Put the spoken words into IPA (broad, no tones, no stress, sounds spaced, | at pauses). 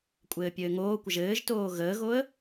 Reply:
kʷʼ ɘː pʲ ɘː ŋ oː kʷ ə ʒ ɘː ʒ t oː ɣ əː ɣ o ə̯